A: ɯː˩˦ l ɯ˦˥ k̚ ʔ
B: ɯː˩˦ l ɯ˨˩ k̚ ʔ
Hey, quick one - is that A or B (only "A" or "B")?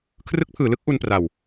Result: A